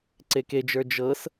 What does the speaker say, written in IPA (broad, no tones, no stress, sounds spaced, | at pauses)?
ǀ e k e d͡ʒ ə˞ d͡ʒ ɤ s